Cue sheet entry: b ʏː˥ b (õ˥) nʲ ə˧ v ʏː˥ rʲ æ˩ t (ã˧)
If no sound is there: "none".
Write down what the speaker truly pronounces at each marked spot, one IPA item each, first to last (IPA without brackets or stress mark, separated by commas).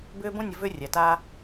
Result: õ˥, a˧